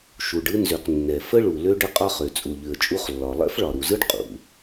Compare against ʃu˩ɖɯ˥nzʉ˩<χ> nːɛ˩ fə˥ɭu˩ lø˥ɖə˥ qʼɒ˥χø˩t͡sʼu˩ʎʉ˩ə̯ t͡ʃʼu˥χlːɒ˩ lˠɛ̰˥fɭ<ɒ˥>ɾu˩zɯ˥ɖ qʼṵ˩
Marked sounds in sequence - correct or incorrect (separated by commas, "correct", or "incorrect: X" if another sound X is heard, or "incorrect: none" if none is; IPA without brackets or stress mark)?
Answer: incorrect: q, incorrect: ɒ˩